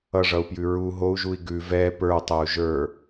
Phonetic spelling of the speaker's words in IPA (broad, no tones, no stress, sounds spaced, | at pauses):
ʌ ʐ ʌ u̯ p j ʉ ɹ u ɦ o u̯ ʒ u i̯ ɡ ʉ v ɛ p ə˞ tˤ ɛ u̯ ʒ ə˞